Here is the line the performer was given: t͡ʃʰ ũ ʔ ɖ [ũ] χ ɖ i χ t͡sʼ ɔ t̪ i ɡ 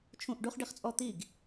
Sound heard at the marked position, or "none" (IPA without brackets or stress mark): u